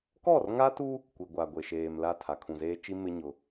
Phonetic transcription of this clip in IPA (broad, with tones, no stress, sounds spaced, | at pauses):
k ɔ˦˨ r ŋ a˦ t u˦ | kʷ i˨ ɡʷ a˨ ɡʷ e˨ ʃ eː˨ m l a˦˨ tʰ a˨ kʰ ũ˨ z eː˦ t͡ʃ i˦ m ɪ˦ ɲ ʊ˦